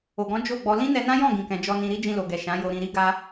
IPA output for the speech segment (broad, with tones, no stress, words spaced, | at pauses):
o˨ɡɔ̃˨˦ d͡ʒo˦˨ɡ͡bɔ˧ lĩ˦nɛ˧nã˦jɔ̃˦˨ ɡĩ˨kɛ̃˨ d͡ʒɔ˧nĩ˧ɾi˦ d͡ʒĩ˧lo˨ɡɛ˨ ʃã˨˦jo˧ɾĩ˧ ɾi˦ ɡa˦